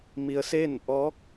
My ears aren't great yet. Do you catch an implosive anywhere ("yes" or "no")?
no